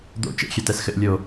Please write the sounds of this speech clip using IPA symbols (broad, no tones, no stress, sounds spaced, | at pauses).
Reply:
d̪ o̰ t͡ʃ ḛ xʲ ɛ t ɛ s x ɘ ʔ lʲ o